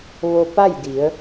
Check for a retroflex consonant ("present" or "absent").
absent